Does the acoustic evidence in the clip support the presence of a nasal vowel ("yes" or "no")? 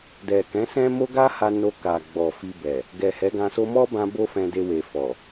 yes